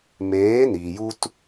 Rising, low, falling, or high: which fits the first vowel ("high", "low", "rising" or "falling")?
rising